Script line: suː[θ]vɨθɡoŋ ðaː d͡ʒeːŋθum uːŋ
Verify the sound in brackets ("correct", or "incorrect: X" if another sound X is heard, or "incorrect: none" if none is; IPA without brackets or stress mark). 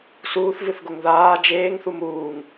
correct